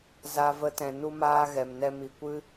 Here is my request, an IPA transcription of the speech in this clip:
z a˧ v ə˧ t ɛ̃˨ n u˦ m aː˦ ɣ ɛ˨ m n ɛ˧ m i˨ kʷ ɨ˦

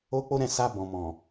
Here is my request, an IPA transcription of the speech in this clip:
o˦ k͡p o˦ ɾ ɛ̃˦˨ s a˧ b ɔ̃˨ m ɔ̃˨

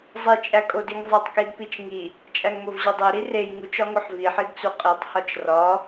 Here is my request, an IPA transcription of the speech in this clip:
zˤ i t͡ʃʼ æ kʼ o d i ŋ zˤ æ tˤ k i d p i t͡ʃ ŋ i | t͡ʃʼ æ ŋ m o v ʑ ɒ dˤ e ɾ i r e j ŋ u t͡ʃ ɒ ŋ o ħ v i ħ i d t͡s u qʼ i tˤ h ɒ t͡ʃ r ɒ

